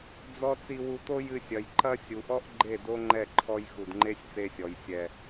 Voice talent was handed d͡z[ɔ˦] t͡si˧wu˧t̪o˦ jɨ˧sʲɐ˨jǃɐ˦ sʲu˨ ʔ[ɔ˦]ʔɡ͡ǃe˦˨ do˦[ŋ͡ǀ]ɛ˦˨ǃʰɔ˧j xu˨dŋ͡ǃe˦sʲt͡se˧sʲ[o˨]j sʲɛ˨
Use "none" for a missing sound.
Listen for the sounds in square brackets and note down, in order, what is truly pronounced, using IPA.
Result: ɔ˦, ɔ˦, ŋ͡ǃ, ɔ˨

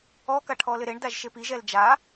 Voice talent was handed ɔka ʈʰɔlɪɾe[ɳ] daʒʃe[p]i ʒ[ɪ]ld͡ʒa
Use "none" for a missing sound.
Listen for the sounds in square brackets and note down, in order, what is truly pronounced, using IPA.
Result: ɳ, p, ɛ

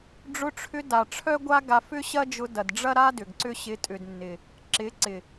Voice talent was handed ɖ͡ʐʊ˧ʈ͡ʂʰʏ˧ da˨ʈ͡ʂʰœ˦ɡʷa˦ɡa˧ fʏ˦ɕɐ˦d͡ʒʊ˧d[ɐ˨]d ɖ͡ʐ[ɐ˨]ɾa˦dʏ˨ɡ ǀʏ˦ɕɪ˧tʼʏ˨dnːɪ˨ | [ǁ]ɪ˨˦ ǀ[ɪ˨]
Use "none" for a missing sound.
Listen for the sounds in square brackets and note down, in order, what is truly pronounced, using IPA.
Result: ɐ˨, ɐ˦, ǁ, ɪ˨

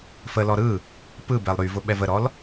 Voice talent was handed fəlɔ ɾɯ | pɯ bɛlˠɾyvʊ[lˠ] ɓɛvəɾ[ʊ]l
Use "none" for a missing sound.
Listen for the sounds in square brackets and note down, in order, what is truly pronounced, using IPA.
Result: none, ɔ

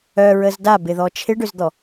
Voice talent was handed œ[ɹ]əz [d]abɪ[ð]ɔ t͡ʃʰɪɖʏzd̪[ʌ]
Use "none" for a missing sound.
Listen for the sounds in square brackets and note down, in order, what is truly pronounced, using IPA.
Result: ɹ, d, ð, ɔ

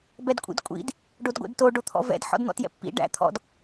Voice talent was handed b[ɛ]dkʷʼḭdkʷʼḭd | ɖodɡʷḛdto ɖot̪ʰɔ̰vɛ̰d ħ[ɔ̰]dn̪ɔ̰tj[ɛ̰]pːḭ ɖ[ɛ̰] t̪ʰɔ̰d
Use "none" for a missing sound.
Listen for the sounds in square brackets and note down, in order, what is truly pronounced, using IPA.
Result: ɛ, ɔ̰, ɛ̰, æ̰

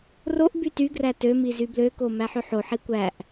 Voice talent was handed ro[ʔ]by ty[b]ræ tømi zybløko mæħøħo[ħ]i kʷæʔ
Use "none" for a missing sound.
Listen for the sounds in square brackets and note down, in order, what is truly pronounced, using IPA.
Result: ʔ, ɡ, ħ

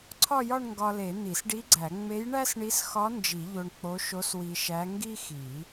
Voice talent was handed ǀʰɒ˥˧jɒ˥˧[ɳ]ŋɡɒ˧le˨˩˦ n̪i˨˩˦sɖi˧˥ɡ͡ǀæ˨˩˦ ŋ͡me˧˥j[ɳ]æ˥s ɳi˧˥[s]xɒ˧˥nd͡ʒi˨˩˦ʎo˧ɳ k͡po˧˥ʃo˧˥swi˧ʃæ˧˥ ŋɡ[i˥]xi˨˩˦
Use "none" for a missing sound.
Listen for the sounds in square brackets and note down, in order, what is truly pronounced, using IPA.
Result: ɳ, ɳ, s, i˥

